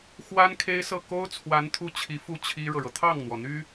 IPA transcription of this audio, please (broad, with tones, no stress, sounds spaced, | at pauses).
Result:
x w a˥ n kʰ e˥ ɪ̯ s ɤ˥˩ k o˥ ʊ̯ t͡sʰ w a˧˥ n t̪ʰ u˥˩ t͡ɕʰ i˧˥ f u˥˩ t͡ɕʰ i˥ ɻ ɤ˨ ɻ ɤ˩ t̪ʰ ɑ˥˩ ŋ n̪ w ɔ˩ n̪ y˥